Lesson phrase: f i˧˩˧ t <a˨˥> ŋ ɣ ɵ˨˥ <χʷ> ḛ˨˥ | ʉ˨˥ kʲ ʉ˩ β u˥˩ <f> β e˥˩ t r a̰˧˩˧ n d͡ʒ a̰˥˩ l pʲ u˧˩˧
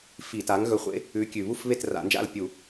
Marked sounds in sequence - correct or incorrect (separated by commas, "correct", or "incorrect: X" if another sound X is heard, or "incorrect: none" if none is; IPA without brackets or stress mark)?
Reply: correct, correct, correct